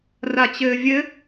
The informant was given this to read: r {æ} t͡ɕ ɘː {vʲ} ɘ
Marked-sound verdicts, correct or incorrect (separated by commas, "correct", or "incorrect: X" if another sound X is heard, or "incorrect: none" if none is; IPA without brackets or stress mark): incorrect: a, correct